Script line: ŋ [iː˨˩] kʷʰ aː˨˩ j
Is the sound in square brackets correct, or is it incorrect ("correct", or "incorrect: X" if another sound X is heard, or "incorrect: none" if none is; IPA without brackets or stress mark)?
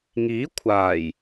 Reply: incorrect: iː˨˥